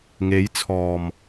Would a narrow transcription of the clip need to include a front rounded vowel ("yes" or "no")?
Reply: no